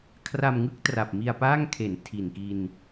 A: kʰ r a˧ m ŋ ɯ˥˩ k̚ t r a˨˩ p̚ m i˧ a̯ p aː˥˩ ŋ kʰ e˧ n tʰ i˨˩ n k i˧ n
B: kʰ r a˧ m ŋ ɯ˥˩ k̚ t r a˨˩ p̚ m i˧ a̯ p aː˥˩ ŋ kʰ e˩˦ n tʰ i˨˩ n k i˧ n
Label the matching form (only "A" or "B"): B